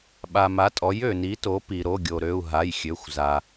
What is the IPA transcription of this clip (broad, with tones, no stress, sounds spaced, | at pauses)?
ɓ a˩ m a˩˥ tʼ ɔ˩˥ j ø˩ n i˩˥ t o˩˥ p i˩ ɾ o˩˧˩ ɡʲ o˩ ɾ ø˩˧˩ u̯ ɦ a˩˧˩ j xʲ ø˩˧˩ xʷ z a˩